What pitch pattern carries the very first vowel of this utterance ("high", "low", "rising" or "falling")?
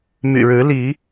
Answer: low